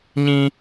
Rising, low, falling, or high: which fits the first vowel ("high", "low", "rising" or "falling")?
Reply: high